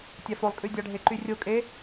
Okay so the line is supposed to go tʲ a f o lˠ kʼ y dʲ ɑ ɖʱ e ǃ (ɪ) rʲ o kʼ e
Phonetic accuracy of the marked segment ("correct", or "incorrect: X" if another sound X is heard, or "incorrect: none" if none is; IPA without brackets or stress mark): incorrect: y